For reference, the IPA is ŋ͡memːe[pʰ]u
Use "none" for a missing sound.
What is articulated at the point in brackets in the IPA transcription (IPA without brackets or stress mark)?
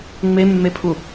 pʰ